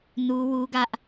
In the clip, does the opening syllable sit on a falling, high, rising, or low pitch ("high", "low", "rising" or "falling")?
high